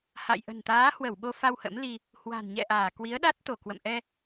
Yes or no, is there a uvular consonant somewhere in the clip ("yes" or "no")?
no